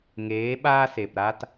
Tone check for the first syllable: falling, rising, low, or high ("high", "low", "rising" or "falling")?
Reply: rising